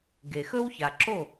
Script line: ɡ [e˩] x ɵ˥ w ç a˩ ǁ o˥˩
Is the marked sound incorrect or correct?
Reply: correct